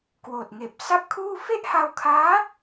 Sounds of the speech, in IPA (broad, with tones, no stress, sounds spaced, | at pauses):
k w oː˨˩ t̚ ŋ eː˨˩ p̚ s a˥˩ p̚ kʰ uː˥˩ f e˥˩ ʔ h a˧ w kʰ aː˦˥